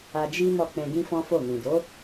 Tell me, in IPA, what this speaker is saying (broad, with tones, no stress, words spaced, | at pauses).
a˧d͡ʒi˦mɔ˦˨ k͡pɛ̃˧ɡĩ˦fɔ̃˦fo˦˨ nĩ˨do˨˦